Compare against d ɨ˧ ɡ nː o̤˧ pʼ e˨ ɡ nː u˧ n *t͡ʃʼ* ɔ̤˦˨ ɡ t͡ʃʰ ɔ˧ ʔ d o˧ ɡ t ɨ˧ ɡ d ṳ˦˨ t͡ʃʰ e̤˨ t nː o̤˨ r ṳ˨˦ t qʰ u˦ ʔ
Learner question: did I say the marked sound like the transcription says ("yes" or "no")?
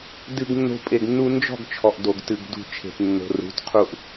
no